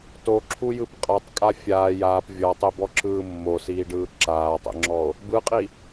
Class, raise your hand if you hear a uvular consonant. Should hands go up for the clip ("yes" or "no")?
yes